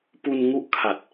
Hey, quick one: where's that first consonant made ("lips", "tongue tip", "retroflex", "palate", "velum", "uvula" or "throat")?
lips